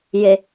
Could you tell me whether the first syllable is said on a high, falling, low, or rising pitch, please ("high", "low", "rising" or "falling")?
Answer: low